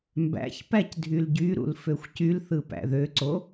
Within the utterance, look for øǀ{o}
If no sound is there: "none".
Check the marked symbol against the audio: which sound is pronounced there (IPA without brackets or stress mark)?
o